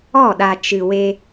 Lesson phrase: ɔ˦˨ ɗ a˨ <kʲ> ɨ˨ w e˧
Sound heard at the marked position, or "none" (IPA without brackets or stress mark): t͡ʃ